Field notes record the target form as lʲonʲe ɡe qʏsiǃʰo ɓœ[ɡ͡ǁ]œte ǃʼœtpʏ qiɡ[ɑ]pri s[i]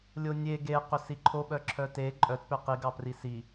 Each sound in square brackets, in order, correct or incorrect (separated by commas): incorrect, correct, correct